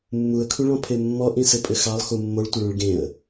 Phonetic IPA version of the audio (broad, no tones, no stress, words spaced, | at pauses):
mːuə̯kʰuɭɔ̃pʰe mːɔʔĩsɘpʼɘ xɑlˠxu mːoɭtʷɘɭũɭ ɡẽə̯